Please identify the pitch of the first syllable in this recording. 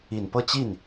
low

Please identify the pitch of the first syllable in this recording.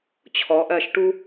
rising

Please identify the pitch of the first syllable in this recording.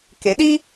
rising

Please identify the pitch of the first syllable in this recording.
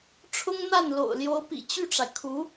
high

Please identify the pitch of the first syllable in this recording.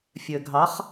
low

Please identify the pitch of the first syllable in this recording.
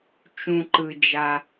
low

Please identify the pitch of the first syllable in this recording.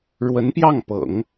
rising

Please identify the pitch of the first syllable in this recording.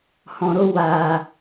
low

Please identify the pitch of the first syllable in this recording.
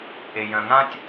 low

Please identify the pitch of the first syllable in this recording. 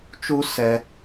high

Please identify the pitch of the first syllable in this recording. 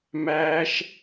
high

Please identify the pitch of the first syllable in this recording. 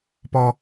high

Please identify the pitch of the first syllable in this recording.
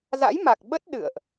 rising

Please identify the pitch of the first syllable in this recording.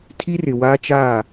high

